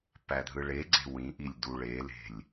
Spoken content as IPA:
pædʱɯɭeɡ͡ǀe̤ wĩʔilʲ duɭele̤lʲ

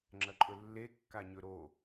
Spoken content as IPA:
ŋ͡ǁɐǃʼɵlːe kːaɲɵɾo

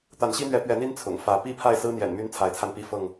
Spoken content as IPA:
t̪a˨˦nɕi˦n̪ɥɛ˨˦ pɥɛ˨˦n̪i˦n t͡sʰʊ̰˨˩ŋ fä˨˦ pi˥˨ pʰa˥˨ɪ̯sɹ̩˦n̪jɛ̰˨˩n my˦n t͡sʰa˨˦ɪ̯t͡sʰa˧npi˥˨ fɤ˥˨ŋ

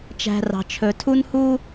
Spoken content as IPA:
t͡ʃæ̤˨rɑ̤˩ t͡ʃʰɵ˩tʰu˦nhu˦

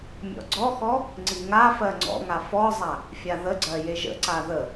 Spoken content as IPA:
mʲɔ̰ɡ͡ǀɔxɔ | ŋ͡ǀiŋafɜ ŋ͡ǀɔ̰ŋa fɔzˤa | fʲaðəɡ͡ǀɜ jeʒə̰ǀa ðə

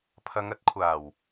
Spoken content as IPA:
pʰɐ˨˧ŋɐ˨˥t̚kʷʰaː˨˩w

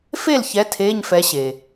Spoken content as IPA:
fe˦˨lçɛ˨˦ tʰeː˧˥˧ɲfɛ˨˦ ɕe˩

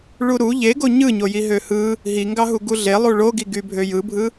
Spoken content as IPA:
ɭuɾu ʎeɡo ɲɯɲoji ɦøhɯ | ɦi ŋɡɑɦuɡuɮe lˠuɭoɡiɡy bʱøjɯbʱɯ

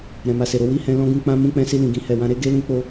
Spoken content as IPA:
ɾɛ̃˨ma˨se˨ɾo˧ wi˦hɛ̃˧ lɔ̃˦ɡũ˧k͡pã˦ mũ˧k͡pɛ̃˧si˧ lĩ˨ɡĩ˧hɛ˨ wã˧ɾe˦ ɡe˦lũ˦ k͡po˦

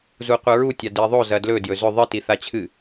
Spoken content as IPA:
zuqʷɨɹu tʲadiðˤo zɐdlɵ djɵzɵ ðˤɨ tiθat͡ɕʰɨ

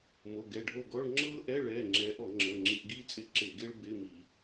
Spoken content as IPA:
mo˩˧˩ɡɛ˩˧˩ɖʱo˦˨ɡɔ˧˥˧ɭ ŋ͡ǁɤː˥ʔɛ˧˥˧ɭɛː˩˧˩ ŋ͡ǁɛː˨˦ʔɔ˧˩˧ŋ͡ǁəː˩˧˩ ŋ͡ǁi˧˩˧ʔɡiː˥t͡sʼɪ˦˨ ǁɪː˧˩˧ɡɪː˥ɭ bɪː˧˥˧mi˧˩˧

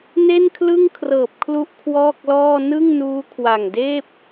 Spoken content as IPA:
ne˥˩nkʰlɯ˥˩ŋkʰrɤː˨˩p̚kʰlu˦˥ʔ kʰwɔː˥˩k̚lɔː˥˩ nɯ˥˩ŋnuː˦˥kʰwa˨˩ŋdeː˥˩p̚

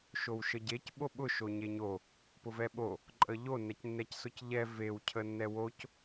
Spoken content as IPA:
ʃowʃəɟec ɓoɓʊ ʃoɲeɲo | pʊvɛɓo | ǃʼəʎo nɛcnːɛcsʊcʎɛ vew cʰənːɛwoc

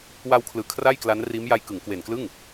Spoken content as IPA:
wa˧wkʰlɯː˨˩ kʰra˥˩jkla˦˥nriː˦˥mja˧j kɯ˩˦ŋkwe˨˩nklɯ˥˩ŋ

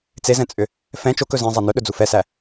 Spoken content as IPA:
t͡sezɛ̃t͡sʼʏ | fɛ̃ t͡ʃokɵ zɛ̃zˤæ nɵɗɵd͡zu fɛsæ

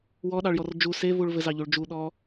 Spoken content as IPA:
wɔɗɑɭjɔr d͡ʒu sevuɭ vɘzɑʎuɭ d͡ʒuɗɔ

